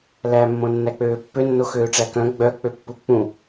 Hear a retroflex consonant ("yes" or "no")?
yes